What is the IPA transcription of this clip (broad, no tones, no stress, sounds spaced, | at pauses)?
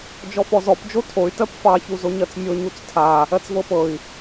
d͡ʒ ɔ f ɔ z ɔ p d͡ʒ o tʰ o y̯ t ɜ p f ɑ ç u z o ɲ ɜ t͡s mʲ o ɲ u t͡s tʰ a | ɜ t͡s v ɤ p ɤ i̯